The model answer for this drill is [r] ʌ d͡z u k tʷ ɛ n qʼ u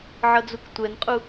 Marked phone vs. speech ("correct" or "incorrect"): incorrect